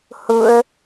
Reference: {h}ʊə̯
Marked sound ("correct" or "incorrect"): correct